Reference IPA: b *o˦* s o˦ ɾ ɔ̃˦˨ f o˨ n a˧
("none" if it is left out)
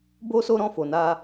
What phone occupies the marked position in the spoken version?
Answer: o˦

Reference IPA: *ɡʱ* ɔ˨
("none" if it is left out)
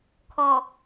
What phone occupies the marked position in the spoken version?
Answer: kʰ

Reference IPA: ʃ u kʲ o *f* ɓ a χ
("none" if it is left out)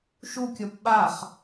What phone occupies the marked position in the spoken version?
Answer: p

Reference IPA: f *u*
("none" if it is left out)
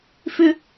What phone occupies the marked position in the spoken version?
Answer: ʏ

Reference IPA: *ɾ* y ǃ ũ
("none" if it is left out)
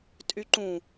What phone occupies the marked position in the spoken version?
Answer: tʼ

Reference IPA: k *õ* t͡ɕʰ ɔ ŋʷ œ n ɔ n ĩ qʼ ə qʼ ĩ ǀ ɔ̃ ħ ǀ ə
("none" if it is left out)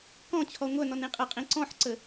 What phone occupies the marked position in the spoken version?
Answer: ɔ̃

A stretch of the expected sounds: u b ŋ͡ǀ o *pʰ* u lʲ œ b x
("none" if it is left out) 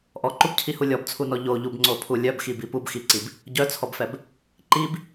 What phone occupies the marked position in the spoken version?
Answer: pʰ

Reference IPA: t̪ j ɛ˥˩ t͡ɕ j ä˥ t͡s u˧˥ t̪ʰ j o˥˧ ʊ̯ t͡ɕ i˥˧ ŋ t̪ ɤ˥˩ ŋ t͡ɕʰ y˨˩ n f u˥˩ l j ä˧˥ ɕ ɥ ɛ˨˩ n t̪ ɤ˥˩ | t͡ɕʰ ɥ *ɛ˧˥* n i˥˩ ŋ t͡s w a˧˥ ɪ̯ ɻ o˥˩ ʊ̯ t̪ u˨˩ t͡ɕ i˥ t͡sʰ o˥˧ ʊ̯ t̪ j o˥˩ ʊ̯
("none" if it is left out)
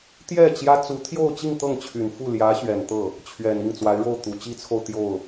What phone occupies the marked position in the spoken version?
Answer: ɛ˨˩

